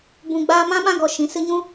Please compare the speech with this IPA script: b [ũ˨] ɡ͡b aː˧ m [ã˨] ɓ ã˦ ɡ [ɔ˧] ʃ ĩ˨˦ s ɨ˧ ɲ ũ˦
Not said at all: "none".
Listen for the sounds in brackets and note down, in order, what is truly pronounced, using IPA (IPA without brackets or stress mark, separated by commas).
ũ˨, ã˦, ɔ˧